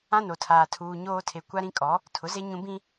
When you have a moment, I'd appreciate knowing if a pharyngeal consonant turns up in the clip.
no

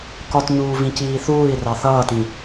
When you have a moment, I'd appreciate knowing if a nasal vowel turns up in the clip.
yes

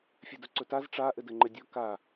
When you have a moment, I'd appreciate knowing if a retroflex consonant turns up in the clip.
yes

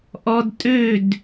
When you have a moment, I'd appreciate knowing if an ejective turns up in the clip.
yes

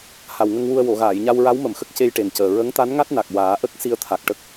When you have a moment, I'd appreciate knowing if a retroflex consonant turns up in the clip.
yes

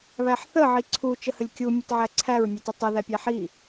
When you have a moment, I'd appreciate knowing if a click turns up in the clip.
yes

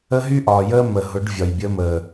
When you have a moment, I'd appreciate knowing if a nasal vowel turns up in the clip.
no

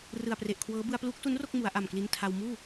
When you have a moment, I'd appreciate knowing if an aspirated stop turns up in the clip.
yes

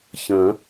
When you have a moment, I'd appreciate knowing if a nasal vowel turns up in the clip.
yes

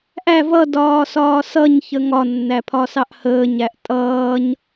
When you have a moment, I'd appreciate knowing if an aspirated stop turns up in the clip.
yes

